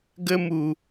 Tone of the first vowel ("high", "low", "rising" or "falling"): high